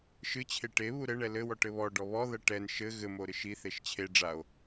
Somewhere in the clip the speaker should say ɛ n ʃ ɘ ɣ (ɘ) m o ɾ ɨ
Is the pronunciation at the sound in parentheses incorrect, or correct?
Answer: correct